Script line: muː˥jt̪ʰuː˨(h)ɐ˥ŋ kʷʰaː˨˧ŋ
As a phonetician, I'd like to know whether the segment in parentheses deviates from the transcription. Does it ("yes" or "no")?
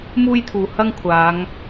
no